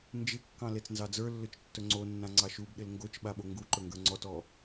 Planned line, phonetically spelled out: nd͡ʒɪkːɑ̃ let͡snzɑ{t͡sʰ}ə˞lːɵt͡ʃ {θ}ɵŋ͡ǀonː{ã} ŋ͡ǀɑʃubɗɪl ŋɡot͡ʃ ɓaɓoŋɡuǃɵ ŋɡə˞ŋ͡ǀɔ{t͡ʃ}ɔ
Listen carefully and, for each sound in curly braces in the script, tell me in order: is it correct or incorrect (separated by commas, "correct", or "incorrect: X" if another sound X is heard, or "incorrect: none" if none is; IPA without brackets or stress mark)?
incorrect: d͡z, incorrect: tː, correct, incorrect: t